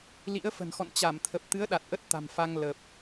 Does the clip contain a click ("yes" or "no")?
no